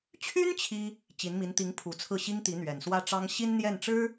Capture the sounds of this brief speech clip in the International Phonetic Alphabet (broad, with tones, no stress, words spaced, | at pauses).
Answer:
t͡ɕʰy˥n t͡ɕʰi˥ | t͡ɕi˧˥nmi˧˥n t̪i˧˥ŋpʰu˨˩t͡sʰɹ̩˥˩ɕi˥ŋ t̪i˧˥n̪ɥɛ˨˩nswä˥ʈ͡ʂɑ˥ŋ ɕi˥nn̪jɛ˥˩nʈ͡ʂɻ̩˥